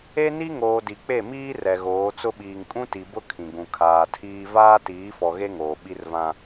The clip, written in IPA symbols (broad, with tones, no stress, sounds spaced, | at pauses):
e˦ n i˦ ŋ oː˨ d i˨ k͡p e˦˨ m iː˦ r ɛ˨ ɣ oː˨˦ t͡s ʊ˦ ɓ iː˨ ŋ kʼ ũ˦ t i˨ b ʊ˦ kʰ ĩ˨ ɡ ũ˨ kʰ aː˨ tʰ iː˦ v aː˦ t iː˨˦ f ɔ˨ ɣ e˦ ŋ oː˨ ɓ i˦ r v ã˦